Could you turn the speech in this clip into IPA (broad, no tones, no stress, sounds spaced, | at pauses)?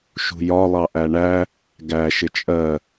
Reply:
ʃ ṳ j ɒ lˠ ɑ ʔ æ ɳ æ | ɡ æ ʃ ɪ t͡ʃʼ ɜ